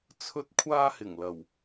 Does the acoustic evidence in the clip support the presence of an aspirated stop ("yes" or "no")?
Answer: yes